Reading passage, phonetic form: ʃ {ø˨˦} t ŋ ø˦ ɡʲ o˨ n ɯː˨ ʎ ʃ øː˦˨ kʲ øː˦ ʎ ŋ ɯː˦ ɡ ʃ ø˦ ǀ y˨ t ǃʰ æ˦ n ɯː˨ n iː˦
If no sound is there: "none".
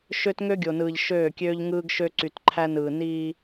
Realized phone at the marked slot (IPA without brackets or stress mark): ø˦